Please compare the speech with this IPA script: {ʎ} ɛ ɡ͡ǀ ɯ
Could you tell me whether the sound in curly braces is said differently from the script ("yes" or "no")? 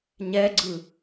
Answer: yes